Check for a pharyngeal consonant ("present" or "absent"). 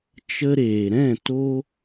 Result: absent